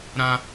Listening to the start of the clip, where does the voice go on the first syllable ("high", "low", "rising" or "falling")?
high